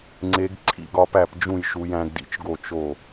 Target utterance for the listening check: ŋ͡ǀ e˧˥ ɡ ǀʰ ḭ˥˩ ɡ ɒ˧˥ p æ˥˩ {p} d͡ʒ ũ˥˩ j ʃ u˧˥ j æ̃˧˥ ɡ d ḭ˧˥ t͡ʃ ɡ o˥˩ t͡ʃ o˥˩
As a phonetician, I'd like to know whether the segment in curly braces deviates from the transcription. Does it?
no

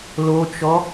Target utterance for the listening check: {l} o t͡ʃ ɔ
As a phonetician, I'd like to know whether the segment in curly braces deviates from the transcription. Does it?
no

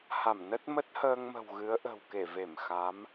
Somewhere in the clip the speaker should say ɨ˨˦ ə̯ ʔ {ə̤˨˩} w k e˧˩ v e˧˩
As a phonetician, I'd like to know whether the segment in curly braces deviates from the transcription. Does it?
no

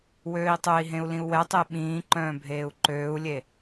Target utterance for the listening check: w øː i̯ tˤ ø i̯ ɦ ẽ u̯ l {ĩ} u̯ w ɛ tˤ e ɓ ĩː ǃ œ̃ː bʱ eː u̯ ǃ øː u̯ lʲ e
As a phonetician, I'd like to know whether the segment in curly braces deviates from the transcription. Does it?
no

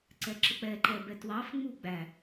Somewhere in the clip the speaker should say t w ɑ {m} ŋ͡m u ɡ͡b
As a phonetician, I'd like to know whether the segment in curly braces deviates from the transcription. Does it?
yes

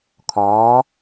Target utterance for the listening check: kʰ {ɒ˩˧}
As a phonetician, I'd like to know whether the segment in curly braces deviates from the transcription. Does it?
yes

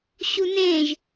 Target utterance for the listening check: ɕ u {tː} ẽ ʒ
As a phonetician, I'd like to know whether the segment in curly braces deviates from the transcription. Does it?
yes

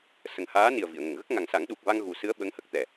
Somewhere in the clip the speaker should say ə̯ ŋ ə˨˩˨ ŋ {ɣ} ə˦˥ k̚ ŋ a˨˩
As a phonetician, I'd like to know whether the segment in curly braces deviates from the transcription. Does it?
no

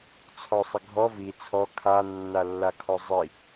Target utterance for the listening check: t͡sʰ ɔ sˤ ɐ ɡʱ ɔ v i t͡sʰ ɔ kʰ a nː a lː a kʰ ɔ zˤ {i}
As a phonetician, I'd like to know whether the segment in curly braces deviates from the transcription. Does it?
no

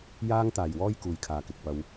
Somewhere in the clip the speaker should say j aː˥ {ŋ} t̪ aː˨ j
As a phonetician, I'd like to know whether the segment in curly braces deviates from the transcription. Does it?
no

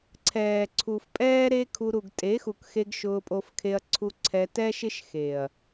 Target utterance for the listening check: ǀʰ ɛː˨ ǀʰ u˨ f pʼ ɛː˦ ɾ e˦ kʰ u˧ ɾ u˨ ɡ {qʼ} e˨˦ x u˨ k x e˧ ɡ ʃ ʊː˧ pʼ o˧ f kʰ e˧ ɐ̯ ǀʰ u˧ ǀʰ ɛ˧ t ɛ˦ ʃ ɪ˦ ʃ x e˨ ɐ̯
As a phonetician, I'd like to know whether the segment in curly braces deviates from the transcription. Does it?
yes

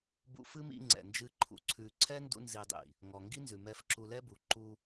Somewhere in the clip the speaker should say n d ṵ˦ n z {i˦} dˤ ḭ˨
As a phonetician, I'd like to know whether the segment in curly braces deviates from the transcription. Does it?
yes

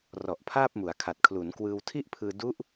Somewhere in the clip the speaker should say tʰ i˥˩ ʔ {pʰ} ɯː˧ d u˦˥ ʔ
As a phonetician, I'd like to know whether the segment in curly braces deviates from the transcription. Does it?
no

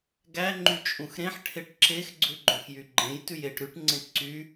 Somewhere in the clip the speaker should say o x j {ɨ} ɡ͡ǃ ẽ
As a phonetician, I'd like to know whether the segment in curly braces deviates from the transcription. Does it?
yes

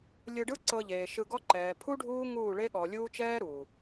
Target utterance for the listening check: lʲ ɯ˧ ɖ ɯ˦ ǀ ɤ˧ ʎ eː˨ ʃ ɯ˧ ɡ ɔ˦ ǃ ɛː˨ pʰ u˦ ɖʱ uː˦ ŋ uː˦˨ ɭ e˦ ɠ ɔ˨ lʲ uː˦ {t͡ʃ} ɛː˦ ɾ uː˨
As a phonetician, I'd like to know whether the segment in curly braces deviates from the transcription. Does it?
no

